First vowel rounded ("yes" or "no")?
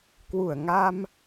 yes